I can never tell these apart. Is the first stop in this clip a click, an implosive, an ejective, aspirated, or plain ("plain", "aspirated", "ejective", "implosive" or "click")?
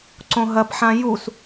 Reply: click